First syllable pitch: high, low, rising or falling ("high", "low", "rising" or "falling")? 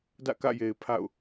falling